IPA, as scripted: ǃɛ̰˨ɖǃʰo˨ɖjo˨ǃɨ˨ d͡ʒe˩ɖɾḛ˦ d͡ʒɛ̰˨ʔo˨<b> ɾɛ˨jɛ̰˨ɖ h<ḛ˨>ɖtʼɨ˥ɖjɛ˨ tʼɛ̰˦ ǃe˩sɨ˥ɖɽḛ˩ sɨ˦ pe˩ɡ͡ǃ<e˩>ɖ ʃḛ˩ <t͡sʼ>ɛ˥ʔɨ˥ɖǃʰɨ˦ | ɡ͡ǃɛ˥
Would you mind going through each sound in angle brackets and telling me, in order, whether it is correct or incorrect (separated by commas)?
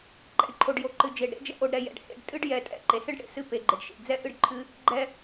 incorrect, correct, correct, incorrect